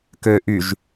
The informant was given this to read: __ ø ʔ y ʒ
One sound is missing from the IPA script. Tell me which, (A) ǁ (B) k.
B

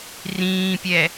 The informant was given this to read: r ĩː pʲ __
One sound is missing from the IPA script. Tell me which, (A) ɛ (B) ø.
A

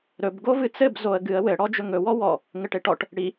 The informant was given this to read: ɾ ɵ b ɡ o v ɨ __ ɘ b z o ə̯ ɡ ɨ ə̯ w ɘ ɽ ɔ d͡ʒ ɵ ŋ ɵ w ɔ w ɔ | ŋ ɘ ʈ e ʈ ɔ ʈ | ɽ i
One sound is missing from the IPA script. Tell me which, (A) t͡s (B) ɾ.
A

